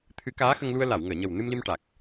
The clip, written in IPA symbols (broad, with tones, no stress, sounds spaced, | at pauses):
t̪ʰ ɨ˨˩˦ k aː˧˥ x ə˧ ŋ l u˧ ə̯ l a˨˩˨ w ŋ əː˨˩˨ ɲ ə˨˩ w n ɨ˧ m l i˧ m ʈ a˨˩ k̚